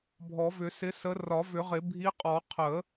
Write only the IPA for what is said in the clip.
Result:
bʱ ɔ˨˩˦ v ʏ˨˩˦ s ɪ˨˦ s ə˨˦ r ɒ˨˩˦ v ʏ˨˩˦ ʁ ɪ˨˩˦ bʱ i˨˦ qʼ ɔ˨˩˦ qʰ ə˨˩˦

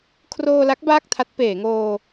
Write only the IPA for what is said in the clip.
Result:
kʰ r oː˧ l a˦˥ k̚ b aː˥˩ k̚ tʰ a˦˥ t̚ p eː˩˦ ŋ oː˧

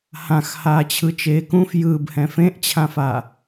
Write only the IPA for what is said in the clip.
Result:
h ã x h aː t͡ɕʰ ɯ t͡ʃ eː k ũ f j ɯː b h ɛ̃ f ẽ ʔ t͡ɕʰ ã f a

